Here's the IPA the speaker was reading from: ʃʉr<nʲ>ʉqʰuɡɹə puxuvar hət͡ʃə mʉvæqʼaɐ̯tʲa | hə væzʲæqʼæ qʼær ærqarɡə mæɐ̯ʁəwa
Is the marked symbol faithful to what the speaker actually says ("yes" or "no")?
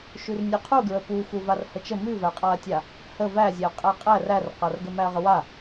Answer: yes